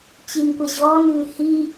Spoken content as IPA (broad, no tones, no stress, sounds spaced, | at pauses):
t͡ɕ i n kʷ ɐ ʑ ɔː n ʉː h i